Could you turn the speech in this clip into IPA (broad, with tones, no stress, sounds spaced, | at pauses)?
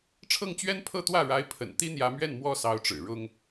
ʈ͡ʂʰ ɤ˥˩ ŋ t͡ɕ ɥ ɛ˥ n pʰ ɤ˥˧ t̪ w ä˥˩ ɻ a˧˥ ɪ̯ pʰ ə̰˨˩ n t̪ i˥ n̪ j ä˧˥ m ɥ ɛ˥˩ n m w ɔ˥ s ɑ˧˥ ʊ̯ ʈ͡ʂ ɻ̩˨˩ ɻ ʊ˥ ŋ